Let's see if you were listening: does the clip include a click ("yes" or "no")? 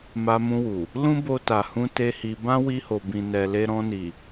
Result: no